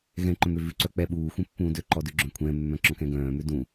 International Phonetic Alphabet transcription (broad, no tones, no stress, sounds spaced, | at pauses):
ɣ ɛ̃ ǃ œ̃ m ø v ʉ ǀ œ k͡p ɛ ɓ uː xʷ ɛ̃ pː ũː d ø ǃ ɔ d ʉ ɡ͡ǁ œ̃ kʷʰ ɛ̃ mː œ̃ ǁ ɔ̃ k ɛ̃ ɡ œ̃ː m ø d ũ